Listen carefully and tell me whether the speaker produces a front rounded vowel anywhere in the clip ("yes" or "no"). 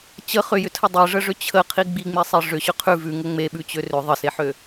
yes